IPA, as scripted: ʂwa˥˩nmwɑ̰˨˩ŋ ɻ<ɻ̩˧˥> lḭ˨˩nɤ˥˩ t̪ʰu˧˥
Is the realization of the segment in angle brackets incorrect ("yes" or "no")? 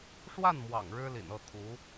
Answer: yes